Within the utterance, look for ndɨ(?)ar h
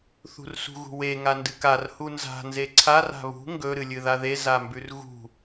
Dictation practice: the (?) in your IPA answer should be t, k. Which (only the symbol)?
k